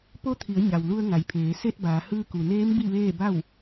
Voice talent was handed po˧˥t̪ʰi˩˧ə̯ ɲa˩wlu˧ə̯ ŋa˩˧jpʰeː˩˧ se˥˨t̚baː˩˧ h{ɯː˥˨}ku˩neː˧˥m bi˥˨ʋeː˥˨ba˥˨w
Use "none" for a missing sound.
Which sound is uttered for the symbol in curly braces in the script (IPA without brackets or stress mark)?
ɯː˧